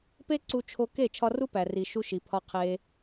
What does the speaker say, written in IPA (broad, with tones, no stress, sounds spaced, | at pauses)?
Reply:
p e˦ ǀ u˧ t͡ʃʰ o˧ k e˦˨ t͡ʃʰ ɒ˧ r u˦ p æ˨ r i˨ ʃ u˧ ʃ i˨ pʰ ɒ˧ qʰ e˧